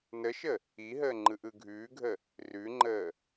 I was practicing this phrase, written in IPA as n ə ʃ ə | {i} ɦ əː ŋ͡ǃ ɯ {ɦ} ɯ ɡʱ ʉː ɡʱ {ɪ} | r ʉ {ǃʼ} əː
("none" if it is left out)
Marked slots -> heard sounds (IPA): i, ʔ, ə, ŋ͡ǃ

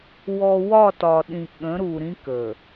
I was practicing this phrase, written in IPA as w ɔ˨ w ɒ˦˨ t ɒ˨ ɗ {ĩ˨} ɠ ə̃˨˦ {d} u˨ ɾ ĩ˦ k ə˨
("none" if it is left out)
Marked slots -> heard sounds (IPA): ĩ˨, ɾ

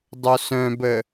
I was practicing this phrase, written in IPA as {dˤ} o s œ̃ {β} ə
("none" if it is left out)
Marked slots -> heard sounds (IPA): dˤ, b

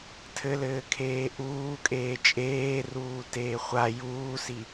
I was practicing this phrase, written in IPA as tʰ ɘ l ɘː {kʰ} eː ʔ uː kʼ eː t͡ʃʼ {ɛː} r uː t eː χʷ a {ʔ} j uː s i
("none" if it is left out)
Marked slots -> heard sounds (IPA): kʰ, eː, none

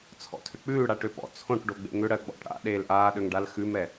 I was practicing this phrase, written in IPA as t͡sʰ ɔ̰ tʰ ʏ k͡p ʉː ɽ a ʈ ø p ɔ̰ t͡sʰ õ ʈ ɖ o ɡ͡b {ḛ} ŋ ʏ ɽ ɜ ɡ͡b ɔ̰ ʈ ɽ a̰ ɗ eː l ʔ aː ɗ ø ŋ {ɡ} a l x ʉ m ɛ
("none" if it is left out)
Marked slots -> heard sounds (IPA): ḛ, ɖ

